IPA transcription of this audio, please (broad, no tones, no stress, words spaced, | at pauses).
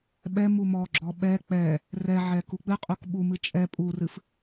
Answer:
ɓɛ mumɔɡ͡ǁɔ ɓɛ k͡pɛ | rɛʕɛ kuk͡pɨqʼuk ɓumɨ t͡ʃʼɛ pʼurɨf